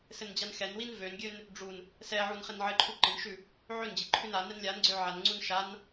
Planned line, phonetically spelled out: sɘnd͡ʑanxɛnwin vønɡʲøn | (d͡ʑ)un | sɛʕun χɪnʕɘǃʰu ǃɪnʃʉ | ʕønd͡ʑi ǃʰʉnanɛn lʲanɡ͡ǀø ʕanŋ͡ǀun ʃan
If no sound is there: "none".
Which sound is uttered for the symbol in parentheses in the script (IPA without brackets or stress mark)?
ɖ͡ʐ